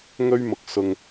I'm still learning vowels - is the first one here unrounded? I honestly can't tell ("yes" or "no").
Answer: no